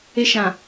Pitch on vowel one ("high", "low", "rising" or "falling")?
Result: high